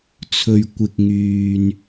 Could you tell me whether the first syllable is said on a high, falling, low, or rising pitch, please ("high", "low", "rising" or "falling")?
high